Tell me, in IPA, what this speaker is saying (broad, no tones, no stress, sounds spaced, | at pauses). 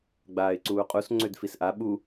ɡ͡b aː ɪ̯ ǀ uː qʼ u s ŋ͡ǀ ø d f i s ʔ a ɓ u